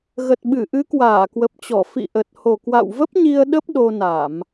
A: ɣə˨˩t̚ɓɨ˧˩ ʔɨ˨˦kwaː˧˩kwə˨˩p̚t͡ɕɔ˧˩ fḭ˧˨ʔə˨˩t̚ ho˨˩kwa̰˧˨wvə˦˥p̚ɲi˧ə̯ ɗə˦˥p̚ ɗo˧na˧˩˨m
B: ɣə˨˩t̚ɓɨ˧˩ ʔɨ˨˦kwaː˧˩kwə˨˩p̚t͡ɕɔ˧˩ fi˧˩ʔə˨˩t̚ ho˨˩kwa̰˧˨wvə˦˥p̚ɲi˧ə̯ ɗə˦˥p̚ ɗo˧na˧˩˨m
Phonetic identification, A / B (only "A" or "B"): A